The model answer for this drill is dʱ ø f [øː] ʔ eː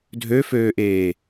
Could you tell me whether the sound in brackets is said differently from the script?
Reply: no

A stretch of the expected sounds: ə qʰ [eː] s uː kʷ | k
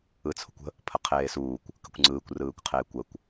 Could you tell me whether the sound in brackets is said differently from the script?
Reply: no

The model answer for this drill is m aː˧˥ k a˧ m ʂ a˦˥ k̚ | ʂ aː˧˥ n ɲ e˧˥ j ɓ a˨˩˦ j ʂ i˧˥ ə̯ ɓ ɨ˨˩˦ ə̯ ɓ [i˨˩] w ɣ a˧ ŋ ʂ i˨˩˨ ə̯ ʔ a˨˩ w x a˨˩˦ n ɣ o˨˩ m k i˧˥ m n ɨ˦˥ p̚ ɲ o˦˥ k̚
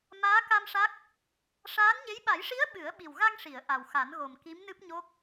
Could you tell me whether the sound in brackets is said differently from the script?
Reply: no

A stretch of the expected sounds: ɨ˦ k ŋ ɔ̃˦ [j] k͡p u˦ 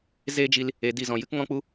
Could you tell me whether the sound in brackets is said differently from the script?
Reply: yes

